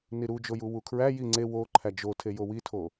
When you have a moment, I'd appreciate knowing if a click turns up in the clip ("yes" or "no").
yes